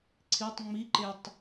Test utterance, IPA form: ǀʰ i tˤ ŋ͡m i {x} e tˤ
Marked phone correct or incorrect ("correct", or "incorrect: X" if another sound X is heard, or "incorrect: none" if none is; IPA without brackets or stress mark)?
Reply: incorrect: ǃ